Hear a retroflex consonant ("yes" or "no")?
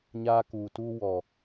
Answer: no